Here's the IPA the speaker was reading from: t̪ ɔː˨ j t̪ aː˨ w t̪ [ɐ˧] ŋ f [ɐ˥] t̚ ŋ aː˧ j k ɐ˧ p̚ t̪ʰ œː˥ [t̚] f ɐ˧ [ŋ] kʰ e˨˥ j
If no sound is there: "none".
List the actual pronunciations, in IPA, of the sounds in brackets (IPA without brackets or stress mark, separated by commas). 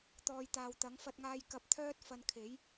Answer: ɐ˨˥, ɐ˧, t̚, n